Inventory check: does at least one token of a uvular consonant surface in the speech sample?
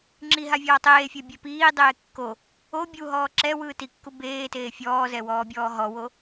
no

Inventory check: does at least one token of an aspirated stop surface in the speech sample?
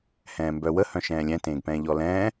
no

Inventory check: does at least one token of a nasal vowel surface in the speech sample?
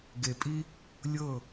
no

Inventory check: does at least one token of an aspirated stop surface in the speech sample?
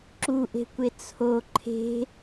yes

